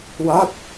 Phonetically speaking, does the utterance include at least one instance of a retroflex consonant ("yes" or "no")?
no